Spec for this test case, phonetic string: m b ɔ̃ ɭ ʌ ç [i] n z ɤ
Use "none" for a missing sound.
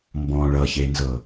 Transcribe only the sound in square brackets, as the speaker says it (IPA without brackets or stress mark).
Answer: e